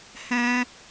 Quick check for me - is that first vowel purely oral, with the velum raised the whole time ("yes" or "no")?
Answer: no